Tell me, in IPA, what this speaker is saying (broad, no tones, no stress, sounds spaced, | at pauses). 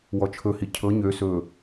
w ɔ t͡ʃʰ ɵ h i cʰ ɤ ɲ ø s ɵ